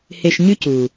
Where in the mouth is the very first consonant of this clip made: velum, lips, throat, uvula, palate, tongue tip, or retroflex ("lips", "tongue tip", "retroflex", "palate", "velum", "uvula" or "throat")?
throat